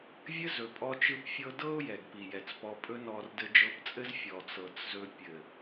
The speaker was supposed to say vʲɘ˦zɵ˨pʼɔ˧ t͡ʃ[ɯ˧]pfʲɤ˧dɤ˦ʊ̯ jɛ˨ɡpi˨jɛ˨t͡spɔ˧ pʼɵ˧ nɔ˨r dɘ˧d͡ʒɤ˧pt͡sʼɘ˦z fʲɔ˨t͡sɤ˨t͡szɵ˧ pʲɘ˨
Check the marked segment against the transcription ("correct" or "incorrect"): correct